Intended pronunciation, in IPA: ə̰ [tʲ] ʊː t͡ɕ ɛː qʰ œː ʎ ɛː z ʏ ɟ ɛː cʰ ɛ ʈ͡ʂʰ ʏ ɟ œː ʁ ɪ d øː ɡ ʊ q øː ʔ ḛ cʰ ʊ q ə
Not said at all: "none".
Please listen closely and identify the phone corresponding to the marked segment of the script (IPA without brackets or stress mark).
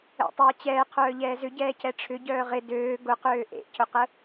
tˤ